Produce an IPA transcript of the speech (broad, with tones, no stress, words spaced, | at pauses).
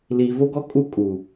liː˨vo˦ɡɔ˦ kʼu˦kʼu˨